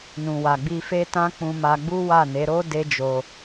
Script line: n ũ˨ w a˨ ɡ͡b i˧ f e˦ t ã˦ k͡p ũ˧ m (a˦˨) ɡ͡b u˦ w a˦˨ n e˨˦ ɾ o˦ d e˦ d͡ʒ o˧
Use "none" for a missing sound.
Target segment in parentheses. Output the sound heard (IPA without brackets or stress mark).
a˧